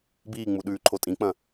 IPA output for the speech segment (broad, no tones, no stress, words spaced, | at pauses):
biːŋ͡muɗʉːǃʰo tʼĩk͡pɐ̃